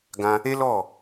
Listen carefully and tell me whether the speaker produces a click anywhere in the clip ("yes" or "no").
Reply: no